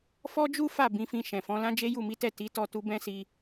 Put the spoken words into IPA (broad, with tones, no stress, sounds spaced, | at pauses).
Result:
f ɔ˦ d͡ʒ u˦ f a˦˨ b ĩ˨˦ f ĩ˧ ʃ ɛ̃˨ f ɔ̃˨˦ l ã˦ d͡ʒ e˦ j u˦˨ m i˨˦ t ɛ˦˨ t i˨˦ t ɔ˦˨ t u˧ b ɛ̃˦ s i˧